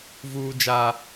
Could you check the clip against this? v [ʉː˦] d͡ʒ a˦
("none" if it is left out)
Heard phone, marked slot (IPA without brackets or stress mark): uː˦